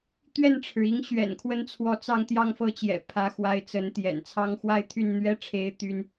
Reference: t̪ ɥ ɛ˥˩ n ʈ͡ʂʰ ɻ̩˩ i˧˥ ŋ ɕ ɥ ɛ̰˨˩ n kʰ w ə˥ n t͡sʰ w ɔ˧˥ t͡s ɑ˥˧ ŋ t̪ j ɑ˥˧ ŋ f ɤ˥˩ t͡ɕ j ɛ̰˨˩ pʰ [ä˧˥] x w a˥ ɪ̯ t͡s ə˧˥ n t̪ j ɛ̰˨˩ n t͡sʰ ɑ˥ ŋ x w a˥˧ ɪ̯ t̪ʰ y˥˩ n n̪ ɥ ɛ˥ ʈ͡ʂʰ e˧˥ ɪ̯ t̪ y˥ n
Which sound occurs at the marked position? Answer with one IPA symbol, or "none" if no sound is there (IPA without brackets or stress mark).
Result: ä˧˥